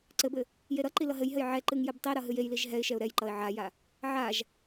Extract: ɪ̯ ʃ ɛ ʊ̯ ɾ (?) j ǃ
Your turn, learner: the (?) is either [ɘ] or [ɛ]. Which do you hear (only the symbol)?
ɛ